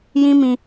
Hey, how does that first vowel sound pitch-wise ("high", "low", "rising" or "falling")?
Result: high